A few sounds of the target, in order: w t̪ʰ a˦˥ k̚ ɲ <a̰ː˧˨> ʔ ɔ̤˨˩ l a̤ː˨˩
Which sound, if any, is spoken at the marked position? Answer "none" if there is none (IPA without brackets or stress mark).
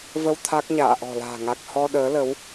a̰ː˧˨